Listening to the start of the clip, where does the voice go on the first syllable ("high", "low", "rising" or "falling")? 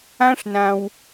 high